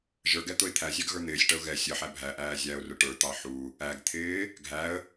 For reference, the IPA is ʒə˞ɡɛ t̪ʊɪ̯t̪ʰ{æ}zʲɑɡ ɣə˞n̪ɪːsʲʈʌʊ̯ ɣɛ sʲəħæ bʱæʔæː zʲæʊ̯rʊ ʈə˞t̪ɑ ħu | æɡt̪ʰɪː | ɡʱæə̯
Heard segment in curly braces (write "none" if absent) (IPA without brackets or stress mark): æ